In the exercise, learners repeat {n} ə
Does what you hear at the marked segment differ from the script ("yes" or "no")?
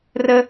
yes